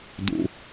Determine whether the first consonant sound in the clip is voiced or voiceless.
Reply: voiced